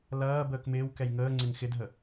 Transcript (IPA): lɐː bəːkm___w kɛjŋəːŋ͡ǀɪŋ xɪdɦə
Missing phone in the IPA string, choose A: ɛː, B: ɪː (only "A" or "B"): B